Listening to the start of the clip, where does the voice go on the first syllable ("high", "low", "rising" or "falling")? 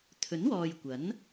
rising